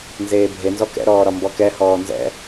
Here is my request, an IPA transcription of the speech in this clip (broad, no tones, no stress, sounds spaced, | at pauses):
n z eː bʱ e n z ɔ k ɛ̰ ɾ ɔː ɾ ɒ m b ɔ k ɛ h ɔː n z ɛ̰